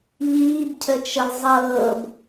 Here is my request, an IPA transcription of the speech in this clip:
ʎ iː b cʰ ə t͡ʃ ə lˠ zˤ ɤː b

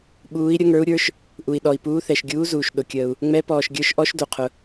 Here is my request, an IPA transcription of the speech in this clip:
ɓ uː˨˦ i̯ ɾʲ ə˨˦ ŋ ə˞˨˦ u̯ ɾʲ ə˞˨˦ ʃ | ʔ u˩ i̯ ɗ ɔ˩ i̯ p uː˨˦ θ ɛ˩ ʃ ɡʲ uː˨˦ z uː˩ ʃ ɗ ʊ˩ kʲ əː˩ u̯ | ŋ͡m ɛ˨˦ p ɔː˩ ʃ ɡʲ ə˞˨˦ ʃ ʔ ɔ˨˦ ʃ d u˩ qʰ ʊ˩

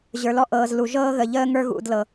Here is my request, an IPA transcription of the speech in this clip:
ʑ ə˞˨ l ɔ˧ ʔ ɤː˨ z l u˨ ʒ ɤː˦ ɣ ə˨ ʎ əː˦ ŋ ə˞˧ ɣ ṵ˨ d l ɤ˨

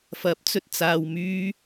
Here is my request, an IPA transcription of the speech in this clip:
f ɐ˨˥ p̚ t͡s ɵ˨ t̚ t͡s aː˨ w m yː˧

